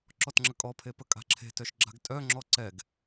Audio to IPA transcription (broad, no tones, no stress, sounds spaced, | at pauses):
ǁ ɔ t ŋ͡ǁ ə kʼ ɔ pʰ e p ə kʼ a̤ ǁʰ e̤ t œ ʃ ɡ͡ǁ a̤ ɡ tʼ œ ŋ͡ǁ ɔ ǀ ɛ ɡ